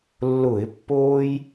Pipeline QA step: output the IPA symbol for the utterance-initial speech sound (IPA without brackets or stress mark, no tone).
lː